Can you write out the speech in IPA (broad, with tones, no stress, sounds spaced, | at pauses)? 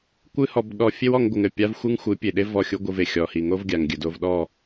kʷ ɨ˦ h ɔ˧ b ɗ ɔ˧ fʲ e˦ w ɔ˧ ŋ ɡʷ ɨ˨ ŋ ɘ˦˨ pʲ a˦ v xʷ ɨ˦ ŋ xʷ ɨ˨˦ pʲ e˨ ɗ e˦ v ɔ˦˨ xʲ u˦ ɡʷ ɨ˧ v e˨ xʲ ɔ˨ h i˨ ŋ o˦ v ɡʲ a˨ ŋ ɡʲ ɘ˨ d o˧ v ɗ ɔ˦˨